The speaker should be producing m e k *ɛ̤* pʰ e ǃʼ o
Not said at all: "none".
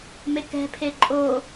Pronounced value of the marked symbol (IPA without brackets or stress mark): ɛ̤